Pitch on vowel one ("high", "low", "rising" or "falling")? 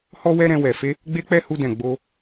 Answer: high